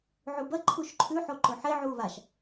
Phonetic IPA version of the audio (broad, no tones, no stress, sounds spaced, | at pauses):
ʕ u b ɐ ǃʰ u ʃ ǃʰ ʉ ħ o ǃ ɵ ħ e ʕ uː β a ʃ